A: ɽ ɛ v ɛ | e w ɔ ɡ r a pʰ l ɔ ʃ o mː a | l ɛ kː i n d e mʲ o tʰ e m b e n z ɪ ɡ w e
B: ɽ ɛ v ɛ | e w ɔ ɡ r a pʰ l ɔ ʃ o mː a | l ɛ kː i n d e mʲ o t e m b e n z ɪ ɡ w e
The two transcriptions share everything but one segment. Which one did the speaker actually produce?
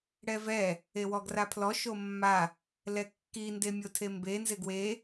A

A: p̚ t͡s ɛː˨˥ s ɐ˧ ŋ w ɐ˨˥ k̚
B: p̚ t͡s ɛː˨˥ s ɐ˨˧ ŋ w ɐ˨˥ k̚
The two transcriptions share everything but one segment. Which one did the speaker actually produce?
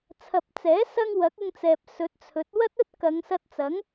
A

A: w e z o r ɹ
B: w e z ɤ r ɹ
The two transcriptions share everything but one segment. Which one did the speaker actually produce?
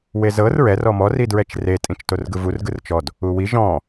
B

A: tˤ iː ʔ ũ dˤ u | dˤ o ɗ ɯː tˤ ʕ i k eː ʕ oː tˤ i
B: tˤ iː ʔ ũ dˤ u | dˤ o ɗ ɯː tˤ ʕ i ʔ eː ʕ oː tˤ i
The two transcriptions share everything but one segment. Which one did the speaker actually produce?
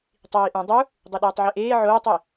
B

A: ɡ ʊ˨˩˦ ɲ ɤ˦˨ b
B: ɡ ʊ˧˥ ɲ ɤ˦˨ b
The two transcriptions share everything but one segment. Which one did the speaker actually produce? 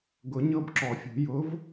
A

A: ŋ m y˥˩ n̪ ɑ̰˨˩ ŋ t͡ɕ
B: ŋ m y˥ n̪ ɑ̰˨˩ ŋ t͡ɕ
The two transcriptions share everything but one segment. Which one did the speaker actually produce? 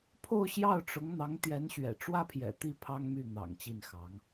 A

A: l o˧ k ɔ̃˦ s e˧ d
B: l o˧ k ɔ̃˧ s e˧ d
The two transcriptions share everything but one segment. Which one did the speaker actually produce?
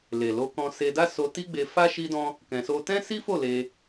B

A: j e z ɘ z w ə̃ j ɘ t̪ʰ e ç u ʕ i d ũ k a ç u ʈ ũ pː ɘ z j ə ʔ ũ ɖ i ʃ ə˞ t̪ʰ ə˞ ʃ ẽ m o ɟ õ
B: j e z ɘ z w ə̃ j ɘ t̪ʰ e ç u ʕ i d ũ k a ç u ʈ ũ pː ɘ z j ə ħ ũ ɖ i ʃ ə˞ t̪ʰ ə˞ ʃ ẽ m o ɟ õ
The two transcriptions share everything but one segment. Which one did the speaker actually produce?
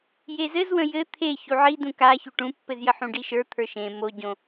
B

